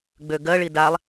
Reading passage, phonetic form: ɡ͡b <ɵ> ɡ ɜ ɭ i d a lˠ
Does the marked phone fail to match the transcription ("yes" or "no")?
yes